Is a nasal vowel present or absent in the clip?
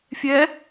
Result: absent